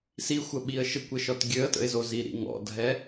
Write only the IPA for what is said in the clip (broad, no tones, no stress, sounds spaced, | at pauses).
s i xʷ ə ɓ i ə̯ ʃ ɘ kʷ ɘ ʃ ɔ t ɡʲ ø ə̯ t ə̰ ɪ̯ z o z i ɾ ḭ ŋ ɔ̰ dʱ ɛ